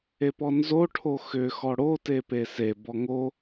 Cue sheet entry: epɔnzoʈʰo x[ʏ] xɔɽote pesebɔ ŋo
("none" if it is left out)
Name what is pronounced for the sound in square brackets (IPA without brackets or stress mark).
ʏ